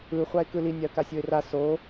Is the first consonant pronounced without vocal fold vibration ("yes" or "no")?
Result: yes